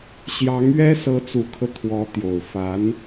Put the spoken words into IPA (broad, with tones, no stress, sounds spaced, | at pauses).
ɕ j ɑ˧˥ ŋ ɥ ɛ˥ s ɤ˧˥ t͡s u˨˩ kʰ ɤ˦ t̪ʰ w ɔ˧˥ t̪ j o˨˩ ʊ̯ f a˧˥ n